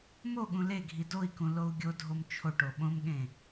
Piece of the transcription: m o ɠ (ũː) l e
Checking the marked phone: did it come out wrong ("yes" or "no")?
yes